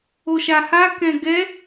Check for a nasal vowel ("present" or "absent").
present